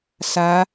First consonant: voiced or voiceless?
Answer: voiceless